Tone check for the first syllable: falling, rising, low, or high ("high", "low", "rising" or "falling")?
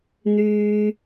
high